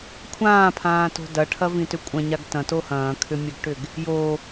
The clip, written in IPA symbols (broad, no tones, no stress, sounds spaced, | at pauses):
kʷʰ ãː pʰ ãː t o̤ d ɐ ʈʰ ɐ v ĩ t ʏ kʷʼ ɐ̃ ɲ a ɡ t ɐ̃ t o h ɐ̃ː kʰ ʏ mʲ ɐ ɡ ʈ ʏ ɡ | j o